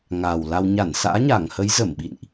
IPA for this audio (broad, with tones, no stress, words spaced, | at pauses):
ŋaː˨˩wla˧w ɲa˧˩nsa̰ː˧˥ɲaː˧˩ŋhə˨˦j zə˧˩mɓḭ˧˨nʔ